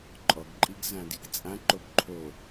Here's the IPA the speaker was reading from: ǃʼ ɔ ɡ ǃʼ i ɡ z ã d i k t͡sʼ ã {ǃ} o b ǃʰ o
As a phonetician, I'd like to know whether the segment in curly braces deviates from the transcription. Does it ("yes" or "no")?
no